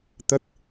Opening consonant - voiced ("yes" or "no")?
no